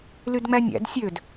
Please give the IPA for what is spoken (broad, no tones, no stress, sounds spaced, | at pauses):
l y d ŋ͡m æ nʲ æ̰ d sʲ ø d